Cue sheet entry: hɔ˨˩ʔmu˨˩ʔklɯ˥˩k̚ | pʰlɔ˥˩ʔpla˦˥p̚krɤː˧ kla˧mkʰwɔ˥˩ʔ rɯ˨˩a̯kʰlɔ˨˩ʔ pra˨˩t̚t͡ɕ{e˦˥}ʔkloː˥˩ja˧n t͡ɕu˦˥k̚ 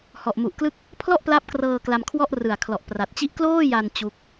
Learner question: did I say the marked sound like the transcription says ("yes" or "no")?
no